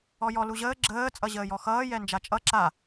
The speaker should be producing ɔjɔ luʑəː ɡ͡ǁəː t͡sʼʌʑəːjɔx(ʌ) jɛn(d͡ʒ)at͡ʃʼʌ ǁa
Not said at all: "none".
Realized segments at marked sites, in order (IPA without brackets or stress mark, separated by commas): ʌː, d͡ʒ